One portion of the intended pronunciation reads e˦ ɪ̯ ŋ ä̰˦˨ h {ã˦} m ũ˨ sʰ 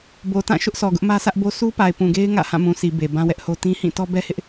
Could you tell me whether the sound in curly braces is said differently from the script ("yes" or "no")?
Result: yes